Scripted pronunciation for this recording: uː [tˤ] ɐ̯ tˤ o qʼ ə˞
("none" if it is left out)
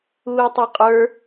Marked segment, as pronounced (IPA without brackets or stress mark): none